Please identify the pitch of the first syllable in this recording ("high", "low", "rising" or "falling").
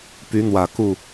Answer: rising